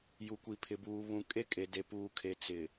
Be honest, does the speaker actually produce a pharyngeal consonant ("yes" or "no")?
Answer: no